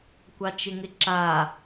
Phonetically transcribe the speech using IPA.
kʷ ɑ t͡ʃ ɪ ŋ ɪ ǁ a

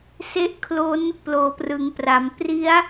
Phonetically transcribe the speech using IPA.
s e˥˩ ʔ kʰ l o˦˥ n | p l oː˩˦ p r ɯ˩˦ ŋ p r a˩˦ m p r i˦˥ a̯

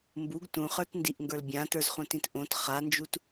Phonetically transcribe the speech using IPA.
m b u ɡ t ũ χ ə˞ t n d i ʔ ŋ ɡ ə˞ l bʲ ã t ə˞ z χ ũ t ĩ t ʔ õ t χ a n d͡ʒ u t

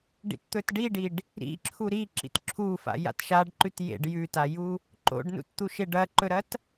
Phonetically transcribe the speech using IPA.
ɖ ḭ t t̪ ɵ t ɖ i ɖ i ɖ | ɾ ḭ ǁʰ u ɾ i ǁ ḭ t ǁʰ u f a̰ j a̰ t ʃ a ɖ ǃ ʉ t j ḛ ɖ j ʉ t a j u | ǃ o̰ ɖ n ṵ t t̪ u ʃ e ɖ ɐ ǃ ɵ ɾ ɐ t

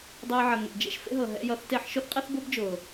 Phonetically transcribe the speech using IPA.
dˤ ɛ˧ j ʕ ʌ˨ ŋ ḛ˨ d͡ʒ ḛ˨ ʃ f ḛ˦ ɦ ɤ˨ ɦ ɛ̰˧ j ʌ˨˦ θ t e˧ ħ ʃ ʊ˦ θ qʼ ɛ˦ θ b ʊ˦ b d͡ʒ ʊː˨

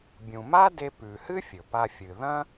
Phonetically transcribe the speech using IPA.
bʲ ũ˩ m a˥ d e˧ p ʉ˩ h ɨ˥ fʲ ɵ˩ p a˧ fʲ ɨ˩ ð ɐ̃˥

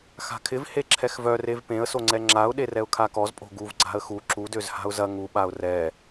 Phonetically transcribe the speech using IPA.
x a̤ kʰ ɪ v h e ǁʰ ɛ x v œ r e v p ẽ ə̯ s o ŋ͡ǀ ɛ ŋ͡ǁ a ʊ̯ ɗ e r ɛ ʊ̯ kʰ a k ɔ z pʼ o̤ ɡ u v ɡ͡ǀ a̤ ə̯ x u ǁ u d ø z h a̤ ʊ̯ z ɐ ŋ u ɓ a ʊ̯ r ɛ

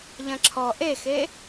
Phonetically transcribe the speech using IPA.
ʎ ɐ̃ ǁʰ ɔ ʔ e x e

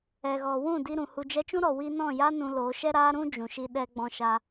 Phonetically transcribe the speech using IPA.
ɛ˨ ɣ ɔ˨ w ũ˦˨ d i˧ ɾ ũ˨ h u˨ d͡ʒ ɛ˧ t͡ʃ ũ˦ ɾ ɔ˨ w i˦ n ɔ̃˦˨ j a˦ n ũ˧ l o˨˦ ʃ ɛ˦ ɾ a˦ ɾ ũ˦ d͡ʒ ũ˨ ʃ i˧ ɗ ɛ˧ ɡ͡b ɔ̃˧ ʃ a˧

